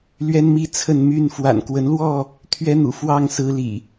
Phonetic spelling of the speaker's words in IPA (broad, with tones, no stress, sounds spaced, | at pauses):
l ɥ ɛ˦ n m i˦ t͡sʰ ə˥˨ n m y˥˨ n f w a̰˨˩ n k w ə˨˦ n l w ɔ˥˨ | t̪ʰ ɥ ɛ˦ n̪ ṵ˨˩ f w ɑ˥˨ ŋ s ɹ̩˦ l ḭ˨˩